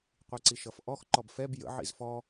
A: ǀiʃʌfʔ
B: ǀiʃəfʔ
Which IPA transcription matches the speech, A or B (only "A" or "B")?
A